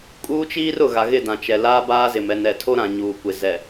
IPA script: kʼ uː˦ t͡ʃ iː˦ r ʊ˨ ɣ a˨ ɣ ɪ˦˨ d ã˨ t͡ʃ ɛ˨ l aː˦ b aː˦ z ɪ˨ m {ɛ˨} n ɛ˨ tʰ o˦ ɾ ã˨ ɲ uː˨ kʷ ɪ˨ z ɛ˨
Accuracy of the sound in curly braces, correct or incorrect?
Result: correct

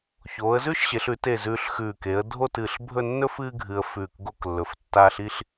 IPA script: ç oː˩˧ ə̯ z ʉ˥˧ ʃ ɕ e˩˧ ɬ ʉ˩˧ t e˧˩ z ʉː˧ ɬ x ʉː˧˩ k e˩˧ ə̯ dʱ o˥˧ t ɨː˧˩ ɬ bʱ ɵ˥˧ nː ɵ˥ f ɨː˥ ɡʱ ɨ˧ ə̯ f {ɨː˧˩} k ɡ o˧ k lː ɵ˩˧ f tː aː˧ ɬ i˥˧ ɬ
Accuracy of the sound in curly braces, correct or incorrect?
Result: incorrect: ʉː˧˩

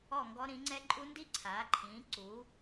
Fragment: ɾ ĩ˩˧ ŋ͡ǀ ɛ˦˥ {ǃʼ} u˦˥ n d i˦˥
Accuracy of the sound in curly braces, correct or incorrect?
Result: correct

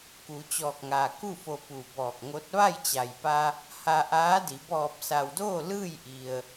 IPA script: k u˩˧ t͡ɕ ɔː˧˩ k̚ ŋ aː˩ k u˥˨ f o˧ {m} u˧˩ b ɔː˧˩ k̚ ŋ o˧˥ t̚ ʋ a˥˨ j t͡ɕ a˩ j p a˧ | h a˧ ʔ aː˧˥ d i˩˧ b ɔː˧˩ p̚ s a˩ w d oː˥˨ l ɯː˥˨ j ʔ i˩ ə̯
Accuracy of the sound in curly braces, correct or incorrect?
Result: incorrect: p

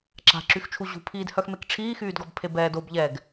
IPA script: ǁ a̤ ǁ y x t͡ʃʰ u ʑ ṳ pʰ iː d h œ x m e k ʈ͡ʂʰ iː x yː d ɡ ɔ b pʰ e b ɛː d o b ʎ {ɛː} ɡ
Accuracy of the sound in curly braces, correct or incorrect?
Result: correct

